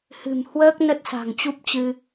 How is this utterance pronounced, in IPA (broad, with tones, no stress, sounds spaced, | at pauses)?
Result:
h ɨ̤˨˩ m h w əː˦˥ k̚ n ə˦˥ t̚ s a̤˨˩ ŋ t͡ɕ u˦˥ p̚ t͡ɕ ɨ˧